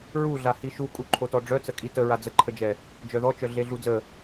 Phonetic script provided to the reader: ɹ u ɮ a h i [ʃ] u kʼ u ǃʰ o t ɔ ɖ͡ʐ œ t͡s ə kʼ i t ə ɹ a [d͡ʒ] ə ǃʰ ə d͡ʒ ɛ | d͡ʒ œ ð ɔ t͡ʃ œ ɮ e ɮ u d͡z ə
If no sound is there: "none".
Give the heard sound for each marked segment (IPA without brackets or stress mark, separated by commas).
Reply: ʃ, d͡z